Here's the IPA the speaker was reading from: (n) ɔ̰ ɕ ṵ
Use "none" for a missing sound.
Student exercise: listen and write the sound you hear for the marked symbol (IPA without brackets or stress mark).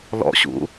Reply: l